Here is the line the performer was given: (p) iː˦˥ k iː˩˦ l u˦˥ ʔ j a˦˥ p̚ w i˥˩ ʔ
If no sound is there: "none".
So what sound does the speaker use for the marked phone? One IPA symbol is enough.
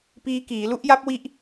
p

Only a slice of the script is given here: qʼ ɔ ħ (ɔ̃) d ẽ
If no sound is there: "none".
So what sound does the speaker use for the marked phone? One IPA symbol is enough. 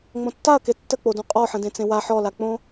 ə̃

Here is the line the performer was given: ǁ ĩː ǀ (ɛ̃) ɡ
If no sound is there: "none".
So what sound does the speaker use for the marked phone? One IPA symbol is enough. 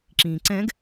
ɛ̃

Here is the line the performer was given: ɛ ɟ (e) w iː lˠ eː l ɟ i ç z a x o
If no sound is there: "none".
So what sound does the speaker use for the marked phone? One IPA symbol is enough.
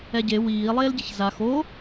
e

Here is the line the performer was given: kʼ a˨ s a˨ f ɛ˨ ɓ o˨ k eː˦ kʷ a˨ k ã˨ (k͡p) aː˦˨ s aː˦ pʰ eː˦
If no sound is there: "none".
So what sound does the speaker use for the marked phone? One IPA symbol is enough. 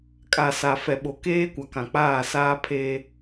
k͡p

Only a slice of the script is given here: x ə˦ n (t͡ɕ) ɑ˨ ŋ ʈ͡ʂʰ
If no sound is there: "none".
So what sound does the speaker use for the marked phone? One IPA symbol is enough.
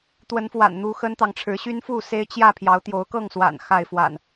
t̪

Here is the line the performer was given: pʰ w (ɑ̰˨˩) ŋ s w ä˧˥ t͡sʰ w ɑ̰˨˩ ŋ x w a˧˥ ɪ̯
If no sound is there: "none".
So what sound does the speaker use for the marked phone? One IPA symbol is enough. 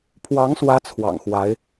ɑ˧˥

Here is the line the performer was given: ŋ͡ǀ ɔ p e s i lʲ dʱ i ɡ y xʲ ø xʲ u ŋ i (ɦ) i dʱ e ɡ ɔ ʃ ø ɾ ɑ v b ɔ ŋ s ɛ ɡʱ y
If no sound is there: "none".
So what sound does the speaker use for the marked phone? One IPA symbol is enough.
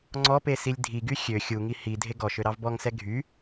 h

